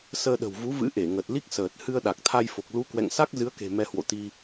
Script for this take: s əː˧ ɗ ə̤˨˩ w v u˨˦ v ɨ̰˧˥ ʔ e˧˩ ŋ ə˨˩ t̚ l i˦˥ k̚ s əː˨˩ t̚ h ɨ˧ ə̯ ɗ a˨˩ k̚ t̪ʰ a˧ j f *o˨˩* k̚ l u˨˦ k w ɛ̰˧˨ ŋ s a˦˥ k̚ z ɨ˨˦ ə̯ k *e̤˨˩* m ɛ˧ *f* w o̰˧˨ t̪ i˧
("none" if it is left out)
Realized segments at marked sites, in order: o˨˩, e̤˨˩, h

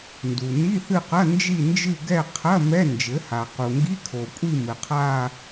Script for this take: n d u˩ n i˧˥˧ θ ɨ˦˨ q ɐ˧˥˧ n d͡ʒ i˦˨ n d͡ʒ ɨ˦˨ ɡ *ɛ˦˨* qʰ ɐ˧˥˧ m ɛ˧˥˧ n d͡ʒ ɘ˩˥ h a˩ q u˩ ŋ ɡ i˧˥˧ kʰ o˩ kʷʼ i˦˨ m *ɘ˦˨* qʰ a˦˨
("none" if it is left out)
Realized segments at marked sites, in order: ɛ˦˨, ɘ˩

